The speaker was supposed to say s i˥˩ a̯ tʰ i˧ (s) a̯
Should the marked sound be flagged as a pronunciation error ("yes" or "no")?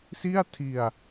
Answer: yes